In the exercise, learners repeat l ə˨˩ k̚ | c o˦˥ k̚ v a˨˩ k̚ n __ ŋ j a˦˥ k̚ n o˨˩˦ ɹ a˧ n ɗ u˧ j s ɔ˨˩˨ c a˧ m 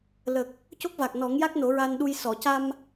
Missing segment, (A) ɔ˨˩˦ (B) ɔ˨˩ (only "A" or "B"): A